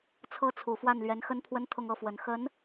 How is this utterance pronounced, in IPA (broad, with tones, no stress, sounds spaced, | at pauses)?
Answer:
t͡sʰ ɤ˥ t͡sʰ u˨˩ f w a˥˩ n l ɥ ɛ˧˥ n x ə˥ n pʰ w ə˥ n t̪ʰ ʊ˥˧ ŋ ɤ˥˩ f w ə˨˩ n x ə˧˥ n